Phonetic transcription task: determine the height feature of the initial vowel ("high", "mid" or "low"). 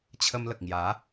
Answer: mid